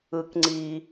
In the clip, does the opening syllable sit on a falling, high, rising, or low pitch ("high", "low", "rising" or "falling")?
low